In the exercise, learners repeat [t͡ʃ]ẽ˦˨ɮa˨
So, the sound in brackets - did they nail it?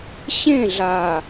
no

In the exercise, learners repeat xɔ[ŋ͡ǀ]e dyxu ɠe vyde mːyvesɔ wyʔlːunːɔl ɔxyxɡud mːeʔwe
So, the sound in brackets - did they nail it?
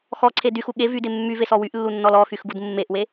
no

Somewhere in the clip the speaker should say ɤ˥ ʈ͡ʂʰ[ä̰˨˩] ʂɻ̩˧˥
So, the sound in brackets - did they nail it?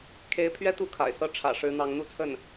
yes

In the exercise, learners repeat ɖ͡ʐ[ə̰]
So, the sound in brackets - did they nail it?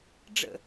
yes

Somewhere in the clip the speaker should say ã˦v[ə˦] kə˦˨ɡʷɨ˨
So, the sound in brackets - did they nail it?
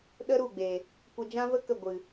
yes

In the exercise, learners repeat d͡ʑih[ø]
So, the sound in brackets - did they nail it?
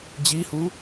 no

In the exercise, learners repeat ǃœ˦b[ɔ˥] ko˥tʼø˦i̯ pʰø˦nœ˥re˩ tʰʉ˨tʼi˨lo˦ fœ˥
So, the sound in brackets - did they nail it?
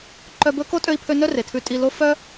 no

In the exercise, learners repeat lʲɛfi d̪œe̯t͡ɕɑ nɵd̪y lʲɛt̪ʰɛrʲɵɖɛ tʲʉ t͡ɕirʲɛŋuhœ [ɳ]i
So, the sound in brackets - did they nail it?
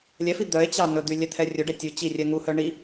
yes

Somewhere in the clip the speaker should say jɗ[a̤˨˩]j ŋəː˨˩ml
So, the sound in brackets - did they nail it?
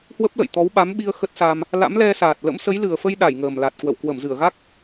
no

